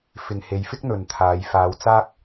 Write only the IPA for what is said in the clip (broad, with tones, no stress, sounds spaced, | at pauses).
f ɪ˨ ŋ h e˨˧ j f ɪ˥ k̚ n̪ ɵ˨ n t̪ʰ aː˨˧ j f aː˨˧ w t͡s aː˥ k̚